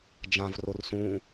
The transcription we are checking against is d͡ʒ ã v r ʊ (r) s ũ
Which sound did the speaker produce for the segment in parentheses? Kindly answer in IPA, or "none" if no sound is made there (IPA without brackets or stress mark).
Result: r